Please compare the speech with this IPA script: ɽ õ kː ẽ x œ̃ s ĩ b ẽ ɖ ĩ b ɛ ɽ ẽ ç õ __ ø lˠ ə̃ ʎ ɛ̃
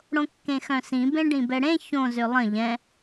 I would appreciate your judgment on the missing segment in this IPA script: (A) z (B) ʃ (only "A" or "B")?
A